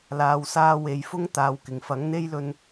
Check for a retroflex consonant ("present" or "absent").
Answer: absent